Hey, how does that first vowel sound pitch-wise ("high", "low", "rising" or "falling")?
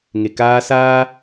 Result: low